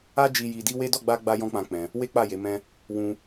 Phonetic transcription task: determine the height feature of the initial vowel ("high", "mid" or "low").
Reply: low